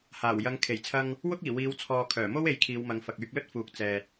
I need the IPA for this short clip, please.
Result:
h aː˨˩ w j ɐ˨˧ ŋ kʰ e˨˩ j t͡sʰ ɐ˧ ŋ | w ʊ˥ k̚ iː˨˩ w iː˨˧ w t͡sʰ ɔː˨ kʰ œː˨˩ m o˥ w e˨˥ j kʰ iː˨˧ w m ɐ˨˧ ŋ f ɐ˨ k̚ yː˧ k̚ l ɵ˥ t̚ f uː˨ k̚ t͡s ɛː˨ t̚

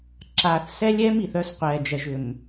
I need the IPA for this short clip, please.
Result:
ǁ aː˨ θ s ɛ˦ lʲ ɛː˦ m i˨ θ œ˦ s qʷ ɛː˨ d͡ʒ ɛ˨ ʒ ʏ˨ m

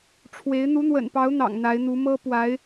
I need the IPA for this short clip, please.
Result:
ʈ͡ʂʰ w e˧˥ ɪ̯ n̪ u˧˥ n̪ w ə̰˨˩ n p ɑ˧˥ ʊ̯ n̪ ɑ̰˨˩ ŋ n̪ a˧˥ ɪ̯ n̪ u˧˥ m ɤ˥ p w a˧˥ ɪ̯

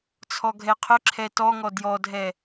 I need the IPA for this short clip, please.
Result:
t͡sʰ ɔ ɡʱ ɛ qʰ ʏ ǁʰ ɛ t ɔ ŋ ɔ d j ɔ dʱ ɛ

